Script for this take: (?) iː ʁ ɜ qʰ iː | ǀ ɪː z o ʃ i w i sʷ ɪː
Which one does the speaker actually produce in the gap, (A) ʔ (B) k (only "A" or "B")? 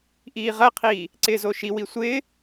A